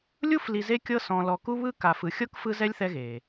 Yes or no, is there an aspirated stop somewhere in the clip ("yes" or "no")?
no